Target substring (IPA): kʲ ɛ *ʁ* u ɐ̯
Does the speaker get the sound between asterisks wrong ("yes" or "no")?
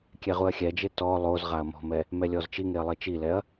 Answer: no